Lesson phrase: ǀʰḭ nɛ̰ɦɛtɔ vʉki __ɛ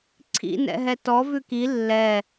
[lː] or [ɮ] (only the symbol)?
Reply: lː